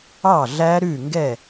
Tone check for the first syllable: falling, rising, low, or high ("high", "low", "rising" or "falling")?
falling